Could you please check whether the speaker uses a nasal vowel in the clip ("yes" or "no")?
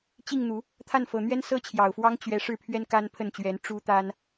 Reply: no